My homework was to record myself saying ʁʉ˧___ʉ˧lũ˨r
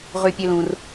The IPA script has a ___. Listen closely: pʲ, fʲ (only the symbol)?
pʲ